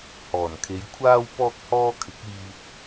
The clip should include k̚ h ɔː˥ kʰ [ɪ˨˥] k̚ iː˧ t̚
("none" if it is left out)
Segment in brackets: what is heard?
ɪ˨˥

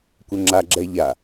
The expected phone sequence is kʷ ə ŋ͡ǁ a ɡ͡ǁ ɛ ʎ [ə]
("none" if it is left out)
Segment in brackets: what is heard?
a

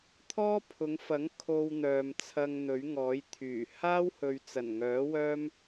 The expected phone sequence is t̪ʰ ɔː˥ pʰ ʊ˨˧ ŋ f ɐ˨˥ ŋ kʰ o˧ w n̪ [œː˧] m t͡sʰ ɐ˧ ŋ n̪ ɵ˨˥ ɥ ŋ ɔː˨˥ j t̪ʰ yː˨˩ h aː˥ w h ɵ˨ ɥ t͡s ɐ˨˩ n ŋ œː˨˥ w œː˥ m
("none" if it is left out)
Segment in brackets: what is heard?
œː˨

